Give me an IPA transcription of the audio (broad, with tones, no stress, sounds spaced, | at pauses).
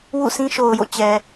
w ṵ˦˨ s ĩ˦ ʃ o˨ ʊ̯ j o̰˦˨ t͡ɕ ɛ˨